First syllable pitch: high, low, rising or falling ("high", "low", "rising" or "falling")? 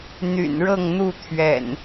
low